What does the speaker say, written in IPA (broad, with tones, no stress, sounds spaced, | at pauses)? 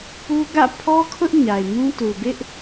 p u˦ ɡ ä̰˦˨ pʰ ɔ˦ kʰ ʊ˦ ʔ ɲ a˨ ɪ̯ m ũ˦ t u˨ b ɪ˦ ʔ